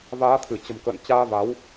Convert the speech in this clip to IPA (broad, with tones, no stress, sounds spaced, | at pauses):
v aː˨˦ t̪ʰ ɨ˧˩ t͡ɕ ə̤˨˩ m k ə̰ː˧˨ n t͡ɕ aː˧ v a˨˦ w